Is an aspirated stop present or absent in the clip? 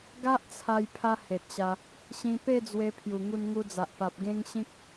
present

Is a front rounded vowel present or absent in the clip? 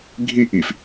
absent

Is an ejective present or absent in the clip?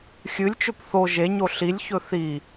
absent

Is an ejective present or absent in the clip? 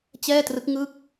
absent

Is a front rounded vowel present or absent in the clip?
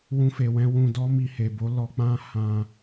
absent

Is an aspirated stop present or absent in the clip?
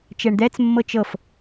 absent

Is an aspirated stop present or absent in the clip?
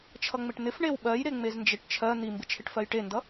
present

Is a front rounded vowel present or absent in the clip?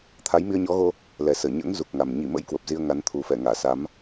absent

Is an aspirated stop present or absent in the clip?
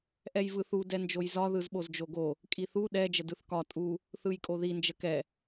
absent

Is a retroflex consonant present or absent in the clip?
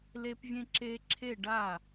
present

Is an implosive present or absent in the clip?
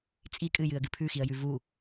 absent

